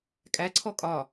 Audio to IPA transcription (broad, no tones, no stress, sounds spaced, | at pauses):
kʼ æ ǀʰ ɔ kʼ ɒː